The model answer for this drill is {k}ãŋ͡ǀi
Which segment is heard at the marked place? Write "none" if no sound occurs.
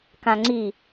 k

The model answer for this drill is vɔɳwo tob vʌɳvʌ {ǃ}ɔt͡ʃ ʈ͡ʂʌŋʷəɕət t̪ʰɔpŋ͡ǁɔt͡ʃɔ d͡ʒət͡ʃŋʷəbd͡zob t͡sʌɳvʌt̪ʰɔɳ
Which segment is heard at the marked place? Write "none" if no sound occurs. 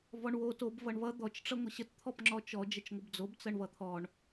d̪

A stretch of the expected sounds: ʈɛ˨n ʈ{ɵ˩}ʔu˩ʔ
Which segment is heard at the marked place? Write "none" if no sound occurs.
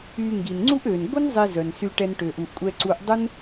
ø˩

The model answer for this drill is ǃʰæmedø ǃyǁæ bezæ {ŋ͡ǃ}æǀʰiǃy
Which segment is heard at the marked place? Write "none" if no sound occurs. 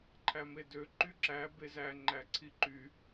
ŋ͡ǃ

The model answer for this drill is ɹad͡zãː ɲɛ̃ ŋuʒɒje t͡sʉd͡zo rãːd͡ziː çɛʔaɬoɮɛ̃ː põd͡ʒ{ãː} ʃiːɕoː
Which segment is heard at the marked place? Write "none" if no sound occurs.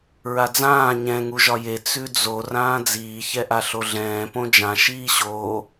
ã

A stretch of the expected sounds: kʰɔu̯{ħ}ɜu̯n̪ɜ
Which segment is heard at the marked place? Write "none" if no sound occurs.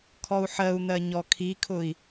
ħ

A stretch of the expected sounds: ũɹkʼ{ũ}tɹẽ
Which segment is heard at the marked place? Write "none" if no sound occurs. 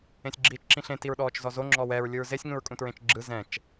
ũ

